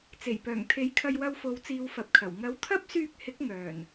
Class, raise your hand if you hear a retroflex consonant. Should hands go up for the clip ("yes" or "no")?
no